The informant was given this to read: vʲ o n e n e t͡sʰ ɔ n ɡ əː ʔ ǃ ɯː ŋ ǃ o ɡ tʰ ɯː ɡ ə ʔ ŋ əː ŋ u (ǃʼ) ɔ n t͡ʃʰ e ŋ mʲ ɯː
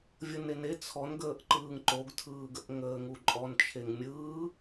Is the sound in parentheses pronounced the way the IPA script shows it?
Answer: yes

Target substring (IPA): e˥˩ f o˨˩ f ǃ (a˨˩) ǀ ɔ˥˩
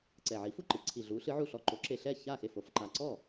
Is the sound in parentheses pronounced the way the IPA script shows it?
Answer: yes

